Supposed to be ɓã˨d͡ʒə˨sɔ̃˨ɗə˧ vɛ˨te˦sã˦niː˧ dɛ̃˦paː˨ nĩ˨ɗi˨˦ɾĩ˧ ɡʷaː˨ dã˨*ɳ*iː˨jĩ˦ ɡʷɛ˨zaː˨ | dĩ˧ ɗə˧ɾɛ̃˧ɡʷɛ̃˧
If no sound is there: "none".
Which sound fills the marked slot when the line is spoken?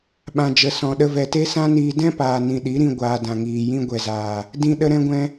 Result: ŋ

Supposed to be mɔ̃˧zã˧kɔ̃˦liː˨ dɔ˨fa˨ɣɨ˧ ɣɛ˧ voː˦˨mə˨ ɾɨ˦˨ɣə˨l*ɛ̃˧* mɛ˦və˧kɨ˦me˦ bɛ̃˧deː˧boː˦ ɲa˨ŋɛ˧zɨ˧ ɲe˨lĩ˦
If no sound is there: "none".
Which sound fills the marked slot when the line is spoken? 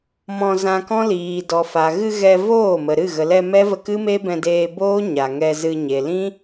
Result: ɛ˧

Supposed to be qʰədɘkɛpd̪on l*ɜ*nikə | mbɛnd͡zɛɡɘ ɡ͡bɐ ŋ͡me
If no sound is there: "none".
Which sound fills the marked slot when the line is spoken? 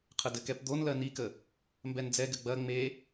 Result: ɜ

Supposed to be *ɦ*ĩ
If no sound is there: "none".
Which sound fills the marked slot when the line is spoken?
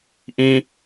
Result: ʔ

